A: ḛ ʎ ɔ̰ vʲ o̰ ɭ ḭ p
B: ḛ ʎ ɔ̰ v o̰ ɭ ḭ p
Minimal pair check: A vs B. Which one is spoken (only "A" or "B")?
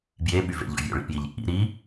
A